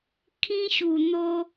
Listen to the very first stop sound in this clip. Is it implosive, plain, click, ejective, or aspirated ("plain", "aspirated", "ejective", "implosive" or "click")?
aspirated